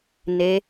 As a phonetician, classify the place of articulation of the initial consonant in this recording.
alveolar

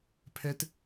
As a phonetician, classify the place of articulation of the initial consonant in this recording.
labial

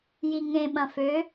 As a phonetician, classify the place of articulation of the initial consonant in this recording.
palatal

